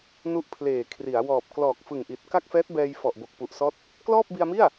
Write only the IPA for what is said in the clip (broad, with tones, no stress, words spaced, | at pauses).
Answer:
nu˦˥ʔpʰleː˨˩ kʰri˩˦a̯ wɔː˨˩p̚ klɔː˨˩k̚fɯ˨˩ŋʔi˨˩t̚ ka˥˩k̚fɛː˦˥t̚bɛː˧j fɔ˨˩ʔbo˨˩k̚ pu˨˩ʔsɔː˦˥t̚ | klɔː˥˩p̚bi˧a̯mi˥˩a̯